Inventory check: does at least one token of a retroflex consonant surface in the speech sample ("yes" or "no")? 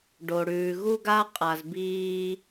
yes